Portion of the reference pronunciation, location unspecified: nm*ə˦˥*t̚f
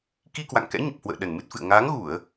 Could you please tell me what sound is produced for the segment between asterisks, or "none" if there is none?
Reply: ɨ˦˥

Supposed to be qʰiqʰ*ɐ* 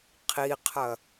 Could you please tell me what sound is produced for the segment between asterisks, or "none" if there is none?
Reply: ɐ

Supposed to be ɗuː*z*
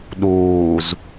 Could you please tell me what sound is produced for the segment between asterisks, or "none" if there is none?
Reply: z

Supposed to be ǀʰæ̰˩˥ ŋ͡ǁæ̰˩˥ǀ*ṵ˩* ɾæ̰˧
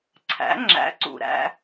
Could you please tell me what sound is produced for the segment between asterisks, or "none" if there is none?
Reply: ṵ˩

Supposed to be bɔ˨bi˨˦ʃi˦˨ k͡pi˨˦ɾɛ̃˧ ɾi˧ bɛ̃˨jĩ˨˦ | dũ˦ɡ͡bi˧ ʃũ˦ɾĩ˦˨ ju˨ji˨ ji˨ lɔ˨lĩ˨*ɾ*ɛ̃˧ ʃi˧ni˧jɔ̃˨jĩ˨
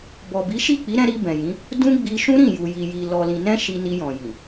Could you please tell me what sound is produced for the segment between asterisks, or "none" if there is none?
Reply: n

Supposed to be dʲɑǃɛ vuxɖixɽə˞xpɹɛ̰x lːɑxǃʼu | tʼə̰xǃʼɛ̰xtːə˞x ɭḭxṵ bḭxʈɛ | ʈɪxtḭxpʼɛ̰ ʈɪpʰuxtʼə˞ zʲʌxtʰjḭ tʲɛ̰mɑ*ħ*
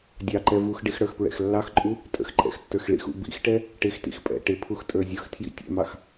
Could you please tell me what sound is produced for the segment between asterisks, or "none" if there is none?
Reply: x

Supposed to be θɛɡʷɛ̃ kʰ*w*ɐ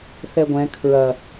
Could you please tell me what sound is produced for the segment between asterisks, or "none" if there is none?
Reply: ɹ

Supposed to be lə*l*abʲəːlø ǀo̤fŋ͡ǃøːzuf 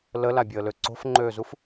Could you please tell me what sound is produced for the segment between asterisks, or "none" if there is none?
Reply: l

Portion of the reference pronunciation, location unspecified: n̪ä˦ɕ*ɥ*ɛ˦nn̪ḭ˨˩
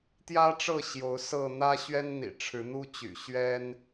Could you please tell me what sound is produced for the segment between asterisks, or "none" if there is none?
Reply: ɥ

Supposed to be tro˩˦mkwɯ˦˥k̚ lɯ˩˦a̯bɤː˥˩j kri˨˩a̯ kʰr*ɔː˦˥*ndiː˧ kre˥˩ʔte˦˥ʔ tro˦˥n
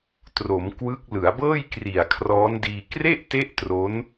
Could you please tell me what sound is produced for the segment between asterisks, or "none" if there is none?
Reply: ɔː˦˥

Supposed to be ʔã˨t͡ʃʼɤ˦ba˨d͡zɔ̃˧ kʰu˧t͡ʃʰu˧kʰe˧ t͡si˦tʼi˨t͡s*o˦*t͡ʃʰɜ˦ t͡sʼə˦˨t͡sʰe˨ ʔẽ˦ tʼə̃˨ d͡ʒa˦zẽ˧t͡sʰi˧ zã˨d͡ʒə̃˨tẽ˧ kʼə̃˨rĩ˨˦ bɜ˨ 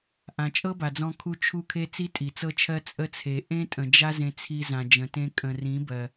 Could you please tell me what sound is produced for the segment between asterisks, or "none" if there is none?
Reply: ɤ˦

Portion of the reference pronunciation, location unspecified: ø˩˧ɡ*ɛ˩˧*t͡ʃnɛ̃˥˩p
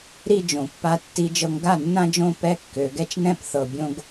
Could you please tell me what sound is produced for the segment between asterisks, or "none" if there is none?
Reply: ɛ˥˧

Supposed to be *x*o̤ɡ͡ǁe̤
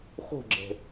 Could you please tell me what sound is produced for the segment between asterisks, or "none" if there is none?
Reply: x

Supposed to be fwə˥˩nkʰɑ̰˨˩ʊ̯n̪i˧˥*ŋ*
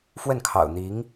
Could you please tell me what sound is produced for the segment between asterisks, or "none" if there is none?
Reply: ŋ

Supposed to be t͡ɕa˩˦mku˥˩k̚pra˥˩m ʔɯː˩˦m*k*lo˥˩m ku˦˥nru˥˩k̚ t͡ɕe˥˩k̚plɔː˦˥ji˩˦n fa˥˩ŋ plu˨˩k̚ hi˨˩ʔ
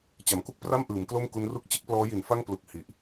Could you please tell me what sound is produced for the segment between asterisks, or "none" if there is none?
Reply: k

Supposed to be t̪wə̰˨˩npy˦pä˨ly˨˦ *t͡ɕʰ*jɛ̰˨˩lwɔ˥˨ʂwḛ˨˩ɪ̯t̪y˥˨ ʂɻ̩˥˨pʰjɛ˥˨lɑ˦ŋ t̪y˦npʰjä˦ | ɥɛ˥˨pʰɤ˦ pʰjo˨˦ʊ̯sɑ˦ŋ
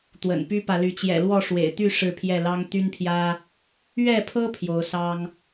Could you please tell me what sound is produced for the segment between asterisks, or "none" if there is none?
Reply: t͡ɕ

